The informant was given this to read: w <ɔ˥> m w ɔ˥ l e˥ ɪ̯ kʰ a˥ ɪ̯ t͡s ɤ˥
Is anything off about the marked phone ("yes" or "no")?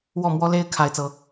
yes